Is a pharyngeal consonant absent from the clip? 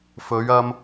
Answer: yes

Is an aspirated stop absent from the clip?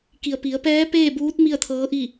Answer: no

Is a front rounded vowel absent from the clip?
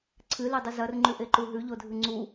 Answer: yes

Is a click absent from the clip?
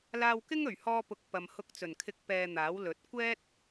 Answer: yes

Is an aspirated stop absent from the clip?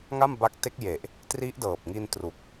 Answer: yes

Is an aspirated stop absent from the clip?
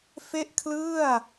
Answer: no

